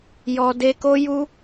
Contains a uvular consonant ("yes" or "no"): no